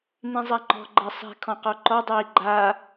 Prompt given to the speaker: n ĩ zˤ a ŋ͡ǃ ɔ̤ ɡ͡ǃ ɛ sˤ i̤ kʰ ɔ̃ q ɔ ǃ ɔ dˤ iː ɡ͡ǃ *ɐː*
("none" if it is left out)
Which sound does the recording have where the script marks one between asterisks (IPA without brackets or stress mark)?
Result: aː